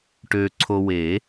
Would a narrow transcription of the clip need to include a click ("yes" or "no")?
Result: yes